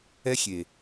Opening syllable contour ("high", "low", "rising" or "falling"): high